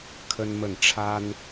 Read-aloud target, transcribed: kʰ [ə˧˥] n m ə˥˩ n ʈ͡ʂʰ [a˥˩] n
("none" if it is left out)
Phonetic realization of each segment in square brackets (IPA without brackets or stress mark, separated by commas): ə˥, a˥